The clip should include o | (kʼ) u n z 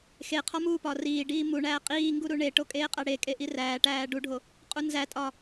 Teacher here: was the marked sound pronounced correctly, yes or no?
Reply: no